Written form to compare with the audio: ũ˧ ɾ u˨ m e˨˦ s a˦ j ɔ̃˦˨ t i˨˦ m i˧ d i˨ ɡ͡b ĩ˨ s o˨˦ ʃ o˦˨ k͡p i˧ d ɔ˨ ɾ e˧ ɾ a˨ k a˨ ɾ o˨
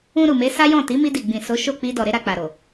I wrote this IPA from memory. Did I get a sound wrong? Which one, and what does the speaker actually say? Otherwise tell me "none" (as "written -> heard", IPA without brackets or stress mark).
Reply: k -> k͡p